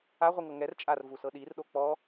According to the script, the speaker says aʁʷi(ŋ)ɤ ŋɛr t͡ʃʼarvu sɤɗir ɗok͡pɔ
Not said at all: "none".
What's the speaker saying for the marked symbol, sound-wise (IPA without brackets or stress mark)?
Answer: ŋ